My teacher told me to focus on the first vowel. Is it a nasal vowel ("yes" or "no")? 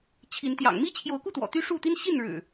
no